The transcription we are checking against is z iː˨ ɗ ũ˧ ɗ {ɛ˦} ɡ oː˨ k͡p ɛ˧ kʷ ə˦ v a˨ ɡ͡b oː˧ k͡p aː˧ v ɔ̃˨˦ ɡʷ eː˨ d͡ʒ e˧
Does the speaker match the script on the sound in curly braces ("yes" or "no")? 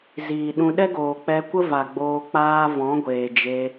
yes